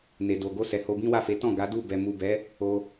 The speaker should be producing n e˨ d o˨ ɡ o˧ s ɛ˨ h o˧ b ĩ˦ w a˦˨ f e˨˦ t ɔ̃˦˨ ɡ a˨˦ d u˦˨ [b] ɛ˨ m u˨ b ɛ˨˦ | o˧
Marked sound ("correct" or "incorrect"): correct